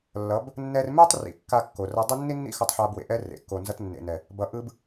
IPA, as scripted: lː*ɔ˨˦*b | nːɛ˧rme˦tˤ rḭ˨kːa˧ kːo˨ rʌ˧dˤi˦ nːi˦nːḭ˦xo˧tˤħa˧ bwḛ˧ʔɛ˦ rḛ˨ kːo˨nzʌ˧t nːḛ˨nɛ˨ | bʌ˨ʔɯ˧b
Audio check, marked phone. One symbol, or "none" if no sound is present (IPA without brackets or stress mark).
ʌ˨˦